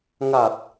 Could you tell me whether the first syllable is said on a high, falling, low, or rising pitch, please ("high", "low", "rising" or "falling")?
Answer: low